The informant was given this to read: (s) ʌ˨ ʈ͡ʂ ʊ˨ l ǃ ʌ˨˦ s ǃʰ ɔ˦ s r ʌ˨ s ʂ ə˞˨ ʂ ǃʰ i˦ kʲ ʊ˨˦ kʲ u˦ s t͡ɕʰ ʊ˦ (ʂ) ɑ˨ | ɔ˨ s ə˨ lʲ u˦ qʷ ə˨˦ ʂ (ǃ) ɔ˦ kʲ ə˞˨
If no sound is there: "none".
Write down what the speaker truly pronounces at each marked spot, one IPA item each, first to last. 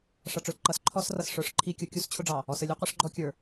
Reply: ʂ, ɖ͡ʐ, ɡ͡ǃ

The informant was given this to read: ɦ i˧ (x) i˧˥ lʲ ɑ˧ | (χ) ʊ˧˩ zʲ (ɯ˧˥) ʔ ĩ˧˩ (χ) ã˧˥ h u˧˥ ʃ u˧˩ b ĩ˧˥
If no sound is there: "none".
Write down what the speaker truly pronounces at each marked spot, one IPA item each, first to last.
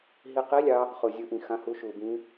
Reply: q, χ, ɯ˧˥, x

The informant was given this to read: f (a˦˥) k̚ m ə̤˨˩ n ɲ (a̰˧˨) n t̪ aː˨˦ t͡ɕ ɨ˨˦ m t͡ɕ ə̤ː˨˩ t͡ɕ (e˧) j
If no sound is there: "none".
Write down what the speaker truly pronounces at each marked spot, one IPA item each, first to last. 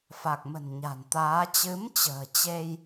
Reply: a˨˩, a̤˨˩, e˧

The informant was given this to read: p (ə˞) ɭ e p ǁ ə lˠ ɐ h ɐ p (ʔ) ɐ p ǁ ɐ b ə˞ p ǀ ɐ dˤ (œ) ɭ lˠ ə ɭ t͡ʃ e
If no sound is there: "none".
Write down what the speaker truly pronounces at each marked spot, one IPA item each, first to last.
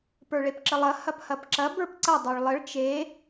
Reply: ə˞, h, œ

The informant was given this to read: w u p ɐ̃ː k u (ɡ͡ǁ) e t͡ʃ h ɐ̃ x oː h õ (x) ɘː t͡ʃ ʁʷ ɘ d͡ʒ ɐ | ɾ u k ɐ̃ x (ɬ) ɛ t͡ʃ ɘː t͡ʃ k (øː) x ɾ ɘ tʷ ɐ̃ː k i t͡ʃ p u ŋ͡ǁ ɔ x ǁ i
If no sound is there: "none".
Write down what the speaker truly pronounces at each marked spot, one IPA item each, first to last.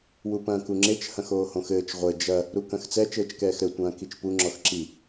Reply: ŋ͡ǁ, x, t͡s, ɛː

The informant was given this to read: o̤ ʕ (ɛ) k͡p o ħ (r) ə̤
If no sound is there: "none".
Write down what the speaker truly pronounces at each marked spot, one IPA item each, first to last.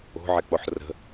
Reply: ɛ, r

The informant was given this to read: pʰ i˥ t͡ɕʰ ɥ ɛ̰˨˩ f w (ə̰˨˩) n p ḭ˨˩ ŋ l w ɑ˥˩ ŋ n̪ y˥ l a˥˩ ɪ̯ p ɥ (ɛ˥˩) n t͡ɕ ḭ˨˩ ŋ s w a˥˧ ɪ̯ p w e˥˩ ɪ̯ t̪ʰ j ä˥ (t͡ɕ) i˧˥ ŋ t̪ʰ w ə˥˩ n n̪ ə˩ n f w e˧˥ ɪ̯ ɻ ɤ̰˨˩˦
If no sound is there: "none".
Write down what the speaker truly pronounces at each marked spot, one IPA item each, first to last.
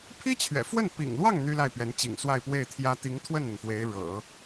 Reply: ə˥˩, ɛ˧˥, t̪

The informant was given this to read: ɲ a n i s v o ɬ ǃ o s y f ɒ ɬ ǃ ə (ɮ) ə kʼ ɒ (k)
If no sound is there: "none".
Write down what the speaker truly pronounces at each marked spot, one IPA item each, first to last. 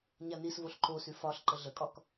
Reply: ɮ, k

